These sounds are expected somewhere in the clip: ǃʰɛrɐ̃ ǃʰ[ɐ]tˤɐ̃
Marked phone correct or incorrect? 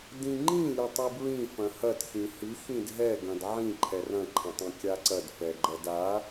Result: incorrect